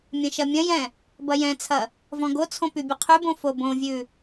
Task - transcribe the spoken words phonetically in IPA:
mʲɐ̃ʃɐmʲɐ̃jɛ̃ | bɐjɛ̃t͡sʰɐ | vɔ̃ɡot͡sʰõ pybʲɐqʰybõ fobõvʲʉ

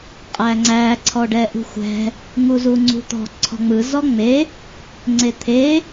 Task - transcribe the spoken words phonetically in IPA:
qʼæŋ͡ǀæ ǀʰɔɖɛʔṳxʷɛ̤ | ŋuzuŋ͡ǀṳt̪ɔ̤ ǀʰɔ̤ŋ͡mɯ zɔŋ͡me | ŋ͡ǀet̪ʰe

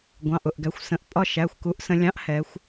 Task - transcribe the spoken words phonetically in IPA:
ɡʷɑ̃˩˧˩ʔ ʊ˥˩ʔɡæ˩˧xʷsə̃˩˧˩ʔ pʼɒ˥˧ ʃæ˩˧˩xʷku˨˥ʔsə̃˩˧lʲɑ̃˨˥ʔ hɛ˩˧xʷ

